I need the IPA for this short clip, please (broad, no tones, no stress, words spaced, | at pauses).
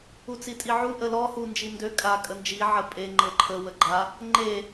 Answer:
ut͡sitʼiʕu ʔəlɔ hu nd͡ʒindø kʼa kʼənd͡ʒi ʕəpʼe ŋ͡ǃɤǃʰə wəɡ͡ǃa | ŋ͡ǃe